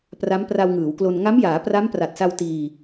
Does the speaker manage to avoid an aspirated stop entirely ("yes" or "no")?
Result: yes